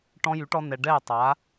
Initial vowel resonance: nasal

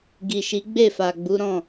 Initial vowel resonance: oral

